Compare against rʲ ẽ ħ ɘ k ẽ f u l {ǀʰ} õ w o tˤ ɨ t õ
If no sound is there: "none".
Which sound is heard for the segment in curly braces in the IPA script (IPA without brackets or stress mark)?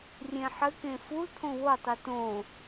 t̪ʰ